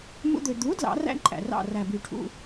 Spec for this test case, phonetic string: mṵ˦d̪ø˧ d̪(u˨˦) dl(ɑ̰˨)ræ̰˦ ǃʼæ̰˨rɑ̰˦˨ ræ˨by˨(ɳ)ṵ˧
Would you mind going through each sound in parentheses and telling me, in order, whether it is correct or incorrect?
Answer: correct, incorrect: ɑ̰˨˦, incorrect: ʈʰ

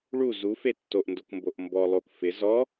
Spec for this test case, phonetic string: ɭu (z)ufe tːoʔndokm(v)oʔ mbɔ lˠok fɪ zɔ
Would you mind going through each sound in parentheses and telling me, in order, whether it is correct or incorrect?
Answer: correct, incorrect: b

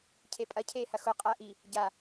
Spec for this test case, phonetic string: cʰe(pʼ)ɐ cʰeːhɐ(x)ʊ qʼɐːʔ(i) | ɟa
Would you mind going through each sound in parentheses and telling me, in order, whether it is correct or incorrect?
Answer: correct, correct, correct

